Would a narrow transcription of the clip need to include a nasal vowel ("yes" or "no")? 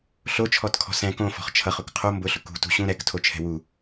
yes